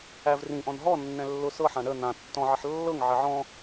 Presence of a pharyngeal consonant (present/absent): present